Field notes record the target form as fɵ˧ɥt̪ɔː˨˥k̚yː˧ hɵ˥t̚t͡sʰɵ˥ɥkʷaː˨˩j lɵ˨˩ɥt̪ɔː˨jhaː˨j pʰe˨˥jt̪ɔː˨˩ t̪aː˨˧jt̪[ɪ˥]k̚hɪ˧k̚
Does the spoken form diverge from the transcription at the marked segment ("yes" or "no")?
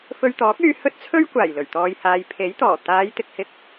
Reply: yes